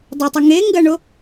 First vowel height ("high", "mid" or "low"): mid